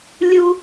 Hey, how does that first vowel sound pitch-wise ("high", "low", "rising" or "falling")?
high